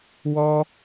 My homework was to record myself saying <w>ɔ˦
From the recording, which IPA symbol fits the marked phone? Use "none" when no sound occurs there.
w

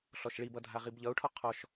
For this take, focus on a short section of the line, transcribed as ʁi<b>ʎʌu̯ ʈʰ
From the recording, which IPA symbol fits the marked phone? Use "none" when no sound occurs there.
b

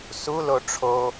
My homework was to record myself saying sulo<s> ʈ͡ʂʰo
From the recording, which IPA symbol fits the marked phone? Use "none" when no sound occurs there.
none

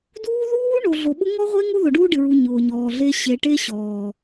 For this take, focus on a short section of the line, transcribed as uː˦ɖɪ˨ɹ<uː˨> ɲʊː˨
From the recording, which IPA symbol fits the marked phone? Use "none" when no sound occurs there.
u˨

